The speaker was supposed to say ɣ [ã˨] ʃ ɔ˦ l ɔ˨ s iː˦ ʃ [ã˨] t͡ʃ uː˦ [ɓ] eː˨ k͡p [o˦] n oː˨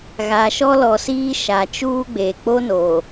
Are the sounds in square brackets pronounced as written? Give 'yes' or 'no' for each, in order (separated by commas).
no, no, no, yes